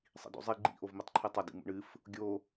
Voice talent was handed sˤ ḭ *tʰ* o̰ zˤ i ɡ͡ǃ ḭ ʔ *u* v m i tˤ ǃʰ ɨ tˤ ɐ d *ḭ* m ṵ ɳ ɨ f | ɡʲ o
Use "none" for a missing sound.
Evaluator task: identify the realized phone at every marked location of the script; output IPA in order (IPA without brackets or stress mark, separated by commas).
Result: d, o, ḭ